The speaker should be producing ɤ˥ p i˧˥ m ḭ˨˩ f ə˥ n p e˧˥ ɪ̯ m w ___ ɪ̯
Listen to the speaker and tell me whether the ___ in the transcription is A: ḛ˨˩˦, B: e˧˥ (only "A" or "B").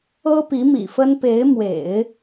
A